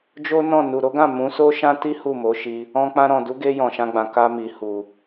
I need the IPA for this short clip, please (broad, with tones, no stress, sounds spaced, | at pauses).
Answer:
d͡ʒ o˦ n ɔ̃˦˨ n u˨ ɾ o˨˦ ɡ ã˦˨ m ũ˨˦ s o˦ ʃ ã˦ t i˦ h u˦˨ m o˨˦ ʃ i˧ | ɔ̃˧ k͡p ã˧ ɾ ɔ̃˨ d u˨˦ ɡ e˧ j ɔ̃˨ ʃ ã˧ ɡ͡b ã˨ k a˧ m i˨ h u˨